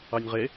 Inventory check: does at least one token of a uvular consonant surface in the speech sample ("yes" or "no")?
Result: yes